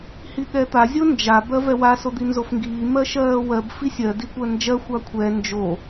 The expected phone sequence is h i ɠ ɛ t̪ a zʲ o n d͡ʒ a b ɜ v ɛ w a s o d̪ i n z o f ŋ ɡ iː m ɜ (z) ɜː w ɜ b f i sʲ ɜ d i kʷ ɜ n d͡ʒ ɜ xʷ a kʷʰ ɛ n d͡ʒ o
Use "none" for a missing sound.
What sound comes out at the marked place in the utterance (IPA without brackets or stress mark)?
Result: ʃ